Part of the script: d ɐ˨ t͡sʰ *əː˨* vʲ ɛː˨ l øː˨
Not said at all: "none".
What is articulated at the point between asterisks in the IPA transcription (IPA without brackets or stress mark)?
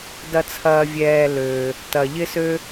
ɐː˨